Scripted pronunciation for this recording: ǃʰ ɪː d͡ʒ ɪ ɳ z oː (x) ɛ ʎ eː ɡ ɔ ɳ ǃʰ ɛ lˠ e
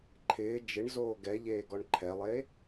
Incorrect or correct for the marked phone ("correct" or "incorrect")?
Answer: incorrect